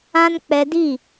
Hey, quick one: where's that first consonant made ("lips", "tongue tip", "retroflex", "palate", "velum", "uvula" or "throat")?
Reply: tongue tip